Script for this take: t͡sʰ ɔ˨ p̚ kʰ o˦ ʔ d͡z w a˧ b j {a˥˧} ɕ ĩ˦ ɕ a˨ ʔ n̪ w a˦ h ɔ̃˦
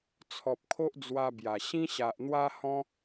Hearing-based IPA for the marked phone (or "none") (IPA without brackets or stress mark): a˨˩